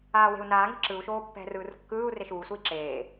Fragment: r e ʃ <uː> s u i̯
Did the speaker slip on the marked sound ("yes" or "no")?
no